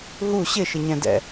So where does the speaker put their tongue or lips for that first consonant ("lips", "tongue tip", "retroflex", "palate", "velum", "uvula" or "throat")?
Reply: throat